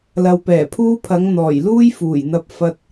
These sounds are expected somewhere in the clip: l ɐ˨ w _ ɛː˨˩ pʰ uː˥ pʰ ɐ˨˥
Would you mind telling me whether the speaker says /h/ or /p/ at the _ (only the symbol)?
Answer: p